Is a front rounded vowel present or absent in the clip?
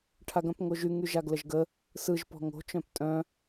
present